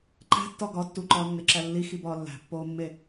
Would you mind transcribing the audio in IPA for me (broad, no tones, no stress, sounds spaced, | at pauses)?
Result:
ǃ æ̤ tː ɒ ɡ ɒ tː u ǃ ɒː nː e ǁ æ lː i x i b ɒː lː æ̤ pː oː mː e